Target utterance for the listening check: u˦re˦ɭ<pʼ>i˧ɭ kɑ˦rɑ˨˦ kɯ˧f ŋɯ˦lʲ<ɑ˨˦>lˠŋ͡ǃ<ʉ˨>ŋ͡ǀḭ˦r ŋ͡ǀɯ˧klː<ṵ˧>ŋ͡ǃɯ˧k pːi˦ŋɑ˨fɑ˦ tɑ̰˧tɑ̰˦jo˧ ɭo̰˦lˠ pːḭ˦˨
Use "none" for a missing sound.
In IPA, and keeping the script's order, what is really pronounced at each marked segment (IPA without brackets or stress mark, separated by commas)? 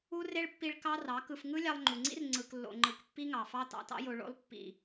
pː, ɑ˧, u˨, o̰˧